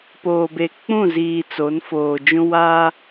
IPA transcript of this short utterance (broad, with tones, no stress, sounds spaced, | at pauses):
p oː˨ b e˨ k͡p ũ˦˨ z iː˨ t͡s o˨˦ n f oː˨ d͡ʒ ũ˦ w a˦